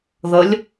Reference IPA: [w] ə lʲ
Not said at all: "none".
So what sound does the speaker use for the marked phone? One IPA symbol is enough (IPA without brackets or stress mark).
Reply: ð